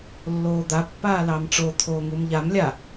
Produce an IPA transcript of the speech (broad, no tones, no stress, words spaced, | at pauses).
lːoːd̪apːaː lɑmʈ͡ʂot̪ʰoː ŋumʎam lʲa